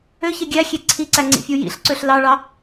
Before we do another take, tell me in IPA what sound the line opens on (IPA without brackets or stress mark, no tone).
ø